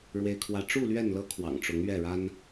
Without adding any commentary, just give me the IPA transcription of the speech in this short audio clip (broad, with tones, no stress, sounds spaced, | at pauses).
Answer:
ɻ w e˦ ɪ̯ kʰ w ä˦ ʈ͡ʂ u˥˨ l ɥ ɛ˥˨ n l ɤ˦ kʰ w ɑ̰˨˩ ŋ ʈ͡ʂ ʊ˨˦ ŋ ɥ ɛ˥˨ ɻ a˦ n